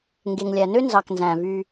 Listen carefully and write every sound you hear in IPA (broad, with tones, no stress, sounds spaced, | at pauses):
ŋ ɡ e˨ ŋ lʲ æ˨ n ø˦ n z ɑ˨ k n z æ̃˨ v y˧